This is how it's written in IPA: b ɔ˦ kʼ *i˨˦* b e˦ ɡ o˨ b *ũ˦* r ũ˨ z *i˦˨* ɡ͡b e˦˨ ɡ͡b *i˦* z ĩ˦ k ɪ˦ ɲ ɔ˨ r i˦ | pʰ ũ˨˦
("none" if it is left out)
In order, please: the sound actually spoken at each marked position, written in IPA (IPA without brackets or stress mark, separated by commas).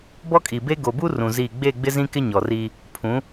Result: i˨, u˦, i˦˨, ɪ˦